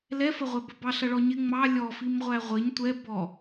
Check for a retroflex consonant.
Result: present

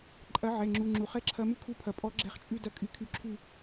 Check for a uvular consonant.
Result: present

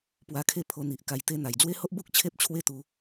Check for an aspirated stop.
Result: present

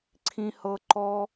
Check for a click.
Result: present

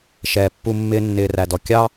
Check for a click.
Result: absent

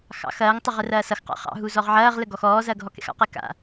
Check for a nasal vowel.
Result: absent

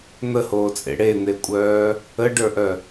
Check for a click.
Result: absent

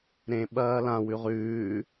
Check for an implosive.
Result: present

